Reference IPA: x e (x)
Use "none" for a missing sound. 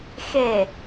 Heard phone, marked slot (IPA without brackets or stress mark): none